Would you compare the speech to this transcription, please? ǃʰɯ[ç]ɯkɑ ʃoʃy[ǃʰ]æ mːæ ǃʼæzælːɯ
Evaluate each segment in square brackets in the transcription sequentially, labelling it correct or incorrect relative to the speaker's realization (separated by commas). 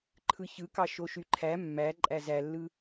correct, correct